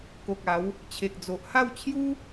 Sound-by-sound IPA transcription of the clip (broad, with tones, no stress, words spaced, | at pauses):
ko˨k̚ a˨˦w | t͡ɕʰe˨k̚d͡zo˨ʔ ha˥˧wt͡ɕʰju˦